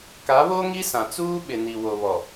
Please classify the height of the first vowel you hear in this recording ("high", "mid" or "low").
low